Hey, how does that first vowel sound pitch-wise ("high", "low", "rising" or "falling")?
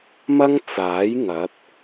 high